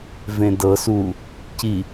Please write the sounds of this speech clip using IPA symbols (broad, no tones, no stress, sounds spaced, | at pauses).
v ẽ d ɤ s u | c i